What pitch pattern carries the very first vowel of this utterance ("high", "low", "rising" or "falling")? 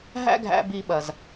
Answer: high